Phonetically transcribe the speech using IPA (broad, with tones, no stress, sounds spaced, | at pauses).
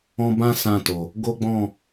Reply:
ɔ̃˦ b ã˦ s ã˦˨ t o˨ | ɡ o˦ ɡ͡b ɔ̃˦˨